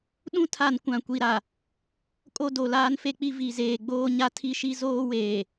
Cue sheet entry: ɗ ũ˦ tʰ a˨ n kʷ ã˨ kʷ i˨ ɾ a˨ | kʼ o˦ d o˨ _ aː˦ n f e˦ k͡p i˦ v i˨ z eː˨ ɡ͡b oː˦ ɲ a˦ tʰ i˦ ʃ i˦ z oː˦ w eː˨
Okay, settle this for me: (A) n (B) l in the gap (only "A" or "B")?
B